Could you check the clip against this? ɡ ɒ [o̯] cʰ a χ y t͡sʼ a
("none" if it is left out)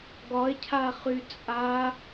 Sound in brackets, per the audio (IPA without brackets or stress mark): e̯